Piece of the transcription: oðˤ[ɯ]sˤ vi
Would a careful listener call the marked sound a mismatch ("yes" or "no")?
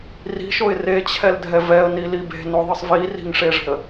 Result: no